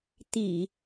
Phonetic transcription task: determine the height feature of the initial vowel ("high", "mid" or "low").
high